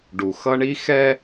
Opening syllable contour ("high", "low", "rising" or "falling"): low